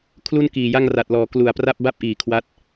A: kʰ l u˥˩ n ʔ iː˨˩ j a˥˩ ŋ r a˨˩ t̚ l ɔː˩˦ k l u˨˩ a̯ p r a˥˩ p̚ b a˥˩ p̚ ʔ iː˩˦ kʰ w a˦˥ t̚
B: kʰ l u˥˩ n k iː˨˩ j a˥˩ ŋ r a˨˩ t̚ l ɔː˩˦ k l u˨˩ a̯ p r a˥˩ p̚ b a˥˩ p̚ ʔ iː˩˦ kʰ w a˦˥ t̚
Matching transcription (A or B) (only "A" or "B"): B